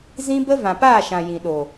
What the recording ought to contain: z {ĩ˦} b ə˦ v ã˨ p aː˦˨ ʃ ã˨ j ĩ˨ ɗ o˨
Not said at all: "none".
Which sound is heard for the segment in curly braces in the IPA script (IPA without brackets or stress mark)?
ĩ˦